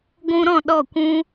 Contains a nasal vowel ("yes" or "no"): yes